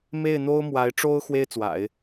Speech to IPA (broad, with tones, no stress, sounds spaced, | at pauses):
m e˥˩ ɪ̯ n̪ o˥ ʊ̯ m w a˧˥ ɪ̯ ʈ͡ʂ o˥ ʊ̯ x w e˥ ɪ̯ t͡s w a̰˨˩˦ ɪ̯